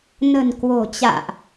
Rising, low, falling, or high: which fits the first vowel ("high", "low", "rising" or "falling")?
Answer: low